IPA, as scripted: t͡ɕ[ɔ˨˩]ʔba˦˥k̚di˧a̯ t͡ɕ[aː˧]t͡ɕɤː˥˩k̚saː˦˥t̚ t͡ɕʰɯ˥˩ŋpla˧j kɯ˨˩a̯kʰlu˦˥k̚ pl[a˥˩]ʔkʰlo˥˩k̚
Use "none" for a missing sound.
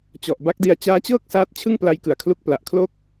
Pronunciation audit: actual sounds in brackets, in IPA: ɔ˨˩, aː˦˥, a˨˩

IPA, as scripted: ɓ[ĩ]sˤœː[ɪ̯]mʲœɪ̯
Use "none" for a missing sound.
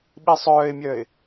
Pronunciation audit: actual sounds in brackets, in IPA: i, ɪ̯

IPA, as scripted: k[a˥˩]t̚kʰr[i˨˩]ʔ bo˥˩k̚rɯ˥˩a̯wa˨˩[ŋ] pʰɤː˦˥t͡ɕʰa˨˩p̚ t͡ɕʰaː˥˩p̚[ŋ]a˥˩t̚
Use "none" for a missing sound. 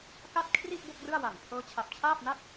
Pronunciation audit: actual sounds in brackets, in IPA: a˥˩, i˥˩, ŋ, n

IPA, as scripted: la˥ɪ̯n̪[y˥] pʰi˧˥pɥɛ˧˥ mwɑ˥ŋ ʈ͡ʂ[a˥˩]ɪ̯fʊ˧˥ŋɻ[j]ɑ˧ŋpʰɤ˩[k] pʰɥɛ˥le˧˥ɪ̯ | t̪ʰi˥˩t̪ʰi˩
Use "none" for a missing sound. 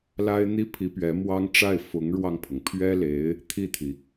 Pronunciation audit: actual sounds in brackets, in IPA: i˥, a˥˩, w, ŋ

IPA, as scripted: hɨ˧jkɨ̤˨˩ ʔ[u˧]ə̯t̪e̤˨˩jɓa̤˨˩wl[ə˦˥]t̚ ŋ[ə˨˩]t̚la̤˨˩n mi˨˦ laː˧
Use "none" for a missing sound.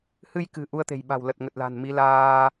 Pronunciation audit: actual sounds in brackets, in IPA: u˧, ə˨˩, ə˨˩

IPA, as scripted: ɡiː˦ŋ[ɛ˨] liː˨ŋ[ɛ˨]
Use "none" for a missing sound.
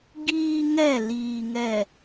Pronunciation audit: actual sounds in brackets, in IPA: ɛ˦˨, ɛ˨

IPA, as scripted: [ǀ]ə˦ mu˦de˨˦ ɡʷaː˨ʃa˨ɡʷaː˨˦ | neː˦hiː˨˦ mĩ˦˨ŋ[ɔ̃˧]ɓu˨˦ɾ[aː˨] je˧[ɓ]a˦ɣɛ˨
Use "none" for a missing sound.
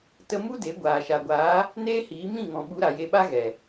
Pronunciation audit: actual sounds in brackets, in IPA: t, ɔ̃˨, a˨, ɓ

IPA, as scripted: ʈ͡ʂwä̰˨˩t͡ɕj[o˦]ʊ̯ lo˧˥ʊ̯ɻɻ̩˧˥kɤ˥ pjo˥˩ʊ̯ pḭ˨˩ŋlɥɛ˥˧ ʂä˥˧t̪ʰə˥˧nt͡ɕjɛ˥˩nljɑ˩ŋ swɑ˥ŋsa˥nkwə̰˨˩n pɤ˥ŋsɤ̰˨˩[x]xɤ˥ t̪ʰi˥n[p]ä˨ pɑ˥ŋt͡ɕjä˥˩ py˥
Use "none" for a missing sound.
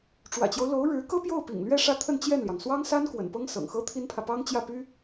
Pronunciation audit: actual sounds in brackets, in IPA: o˦, ŋ, pʰ

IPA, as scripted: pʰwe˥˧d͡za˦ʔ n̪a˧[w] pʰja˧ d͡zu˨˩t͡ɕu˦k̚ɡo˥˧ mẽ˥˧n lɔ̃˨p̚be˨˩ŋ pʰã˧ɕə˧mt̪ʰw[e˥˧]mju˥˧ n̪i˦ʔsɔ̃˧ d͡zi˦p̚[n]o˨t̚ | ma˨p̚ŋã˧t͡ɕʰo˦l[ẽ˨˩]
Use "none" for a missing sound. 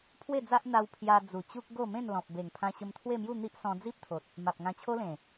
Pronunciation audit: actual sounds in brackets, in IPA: w, e˥˧, t̪ʰ, ẽ˨˩

